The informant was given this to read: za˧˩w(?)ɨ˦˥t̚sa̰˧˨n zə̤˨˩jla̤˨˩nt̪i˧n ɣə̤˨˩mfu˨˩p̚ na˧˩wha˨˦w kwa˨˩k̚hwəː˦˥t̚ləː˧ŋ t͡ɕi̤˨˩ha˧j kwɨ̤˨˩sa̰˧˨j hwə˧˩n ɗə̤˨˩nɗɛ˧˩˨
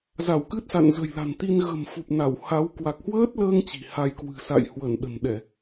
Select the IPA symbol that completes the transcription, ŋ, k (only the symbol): k